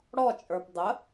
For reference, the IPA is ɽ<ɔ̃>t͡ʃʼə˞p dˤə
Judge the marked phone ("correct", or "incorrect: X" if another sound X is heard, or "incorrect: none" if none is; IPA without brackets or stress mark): incorrect: ɔ